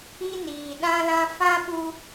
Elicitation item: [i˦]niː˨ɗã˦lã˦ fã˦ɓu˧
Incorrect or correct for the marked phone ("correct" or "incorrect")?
correct